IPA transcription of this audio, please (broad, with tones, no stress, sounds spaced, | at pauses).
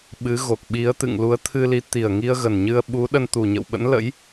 ɓ ɨ˨˦ ɣ o˨˩ k̚ ɓ i˨˦ ə̯ t̪ ɨ̰˧˨ ŋ l u˨˦ ə̯ t̪ʰ ɨ˧ l i˨˦ t̪ i˨˩ ə̯ ŋ i˧ ə̯ ɣ ə˨˩ n ɲ ɨ˧ ə̯ ɓ u˨˦ ɗ ə˧ n t̪ u˨˩ ɲ ə̰˧˨ w ɓ ə̰˧˥ n l ə̰˧˥ j